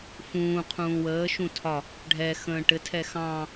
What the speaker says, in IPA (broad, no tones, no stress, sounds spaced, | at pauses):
f ũː qʰ ũː w əː ʃ ũ tʰ ɒ | ɖʱ ɛ x ə̃ː ʈ ɘ tʰ ɛ x ɑ̃